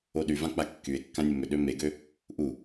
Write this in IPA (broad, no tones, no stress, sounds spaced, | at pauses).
o ɗ y v ã k͡p a kː y e̯ kː ã nʲ ə m ʏ ɗ ø m e ɡ ø | ʔ u